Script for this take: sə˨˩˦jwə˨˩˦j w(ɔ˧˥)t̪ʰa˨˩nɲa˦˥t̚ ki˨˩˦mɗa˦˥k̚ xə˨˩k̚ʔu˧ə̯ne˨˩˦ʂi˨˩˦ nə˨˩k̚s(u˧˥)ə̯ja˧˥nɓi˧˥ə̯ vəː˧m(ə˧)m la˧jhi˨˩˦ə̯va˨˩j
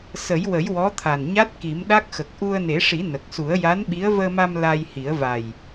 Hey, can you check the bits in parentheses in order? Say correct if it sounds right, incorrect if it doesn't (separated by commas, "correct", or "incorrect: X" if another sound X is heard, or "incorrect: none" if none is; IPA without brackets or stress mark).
correct, incorrect: u˨˩˦, incorrect: a˧